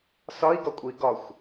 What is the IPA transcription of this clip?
s ɒ i̯ ɡ ɒ kʷʼ i ɡ ɒ xʷ

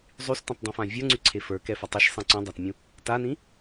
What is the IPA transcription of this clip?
zˤ y s t ẽ tˤ dˤ ɛ̃ f ã vʲ ə˞ ŋ͡ǀ y ǀʰ e f ə˞ k ɛ f a tˤ i ʃ sˤ ẽ ǀ ũ dˤ a t mʲ ũ | t a n ĩ

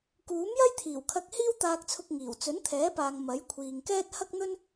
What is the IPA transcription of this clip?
k uː˨˥ m j ɐ˥ j t̪ʰ iː˨˩ w kʰ ɐ˧ k̚ h iː˥ w t̪ aː˧ k̚ t͡sʰ ʊ˧ k̚ ŋ iː˨˩ w t͡s ɵ˨˥ n t̪ʰ ɛː˨˥ p aː˨ ŋ m ɐ˨˥ j kʷʰ iː˨ ŋ k ɛː˥ t̚ h ɐ˥ k̚ n̪ ɵ˥ n

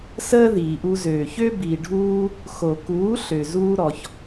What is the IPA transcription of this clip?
s əː˦ ð iː˨ ʔ u˧ z øː˨ ç ø˦ b i˨ ɖʱ uː˧ | x o˨ k uː˨˦ ɬ ø˨ z uː˧ ɾ ɔ˨ ç

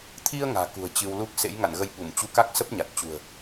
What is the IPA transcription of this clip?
t̪ʰ i˧ ə̯ ŋ a̤ː˨˩ k ṳ˨˩ ə̯ t͡ɕ ɨ˧ w l u˦˥ k̚ s ḛ˧˥ j ŋ a̰˧˨ n ɣ ə˧ j ɓ u˧˩ m t͡ɕ u˧ k a˦˥ k̚ s ə˦˥ p̚ ɲ a˨˩ t̚ t͡ɕ ṳ˨˩ ə̯

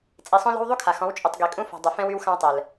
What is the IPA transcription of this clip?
t͡sʼ i˨ sˤ õ˦ l ɔ̤˦ w ðˤ u˦ kʰ a˨ x ɔ̃˨˦ w t͡ʃʼ y˨ tˤ ɡ i˨ kʼ ũ˦ f ɔ̤˨ dˤ ɵ˨ f ɛ̃˦ w y˦ w x ã˦ w tˤ ɛ˨ l

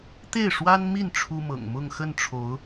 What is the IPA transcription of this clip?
t̪ e˥˩ ɪ̯ ʂ w a˥ n m i˥˩ n ʈ͡ʂʰ u˥ m ɤ̰˨˩ ŋ m ʊ˥˧ ŋ x ə˥˩ n ʈ͡ʂʰ o˧˥ ʊ̯

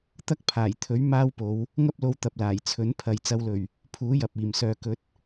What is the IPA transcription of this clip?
t̪ ɐ˥ k̚ pʰ aː˨˩ j t̪ʰ ɵ˨˥ ɥ m aː˥ w p o˨˧ w | ŋ ɐ˥ p̚ l o˧ w t̪ ɐ˨ p̚ l aː˨˩ j t͡sʰ ɵ˨˥ n pʰ ɐ˨ j t͡s ɐ˧ w l ɵ˨˩ ɥ | pʰ uː˨˥ j ɐ˨ p̚ iː˨˩ m s œː˨ k ɵ˨˥ t̚

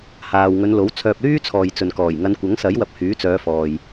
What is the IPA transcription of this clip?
h aː˨ w ŋ ɵ˨˧ n l o˨˥ w t͡sʰ œː˧ p̚ l yː˥ t͡sʰ ɔː˨ j t͡s ɵ˨ n k ɔː˨˩ j ŋ ɐ˨˧ n kʷ ɐ˨˥ ŋ s ɐ˨˥ j w ɐ˧ p̚ h yː˨˥ t͡s œː˨˧ f ɔː˨ j

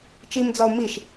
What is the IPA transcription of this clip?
t͡ʃ i m d͡z ɒ ʊ̯ m i ʃ

